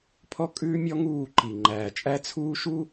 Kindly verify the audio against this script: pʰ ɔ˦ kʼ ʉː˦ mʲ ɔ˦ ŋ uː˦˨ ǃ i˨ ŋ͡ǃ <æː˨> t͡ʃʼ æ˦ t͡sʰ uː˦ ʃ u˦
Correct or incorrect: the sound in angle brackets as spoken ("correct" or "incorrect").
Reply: correct